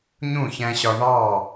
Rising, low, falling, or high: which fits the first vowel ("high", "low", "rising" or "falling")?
falling